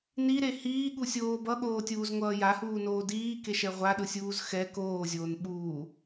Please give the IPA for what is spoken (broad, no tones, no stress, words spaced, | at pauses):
niɾe hiːɠusʲoː bʌɠoːtʲuːzŋʷʌː jahuːnoː diːkeʃɛ ʁʷaɗɯsʲuːz xɛ koːzʲoːn ɓuː